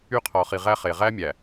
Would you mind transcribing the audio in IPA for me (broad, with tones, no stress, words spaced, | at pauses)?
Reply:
y˦˨qʰɔ˨χi˨ ʁæ˦χe˨ ʁæ˦mʲæ˨